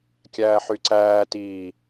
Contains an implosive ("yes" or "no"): no